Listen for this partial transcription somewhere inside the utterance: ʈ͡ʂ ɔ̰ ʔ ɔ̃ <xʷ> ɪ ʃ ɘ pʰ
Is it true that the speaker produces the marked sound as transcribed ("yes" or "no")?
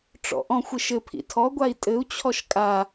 yes